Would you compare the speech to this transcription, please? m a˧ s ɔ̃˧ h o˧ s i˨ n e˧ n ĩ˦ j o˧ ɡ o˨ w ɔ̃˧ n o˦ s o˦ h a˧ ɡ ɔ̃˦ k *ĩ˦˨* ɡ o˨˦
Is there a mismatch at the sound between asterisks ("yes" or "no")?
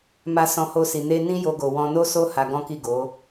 yes